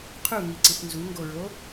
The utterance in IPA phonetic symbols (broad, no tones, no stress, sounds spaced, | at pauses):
qʰ u ŋ i ǀ i θ n z u ŋ ɡ o ɹ o